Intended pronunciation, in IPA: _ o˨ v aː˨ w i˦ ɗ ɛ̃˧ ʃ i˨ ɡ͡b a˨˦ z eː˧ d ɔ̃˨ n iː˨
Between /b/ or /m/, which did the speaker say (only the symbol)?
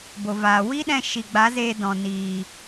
b